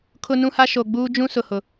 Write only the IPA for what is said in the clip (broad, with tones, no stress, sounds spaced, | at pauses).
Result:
kʰ ʊ˦ n ũ˦ h a˦ ʃ o˨ ɡ͡b uː˦ d͡ʒ ũ˦ s ʊ˨ h ʊ˨